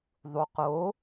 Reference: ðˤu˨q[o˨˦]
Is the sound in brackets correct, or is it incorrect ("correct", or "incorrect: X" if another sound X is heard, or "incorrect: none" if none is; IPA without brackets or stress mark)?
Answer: correct